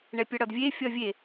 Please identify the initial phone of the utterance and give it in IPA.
ɳ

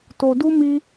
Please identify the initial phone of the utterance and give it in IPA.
t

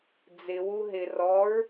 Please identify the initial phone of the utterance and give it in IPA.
d͡z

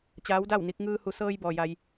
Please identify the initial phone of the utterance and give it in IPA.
t͡ɕ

